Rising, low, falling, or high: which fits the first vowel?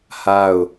falling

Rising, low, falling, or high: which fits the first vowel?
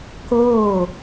falling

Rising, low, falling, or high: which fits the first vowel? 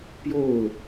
falling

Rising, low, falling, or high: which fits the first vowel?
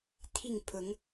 falling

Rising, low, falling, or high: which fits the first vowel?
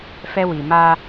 high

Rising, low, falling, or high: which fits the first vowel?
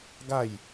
falling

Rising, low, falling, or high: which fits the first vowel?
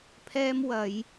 high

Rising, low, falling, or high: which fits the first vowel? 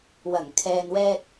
low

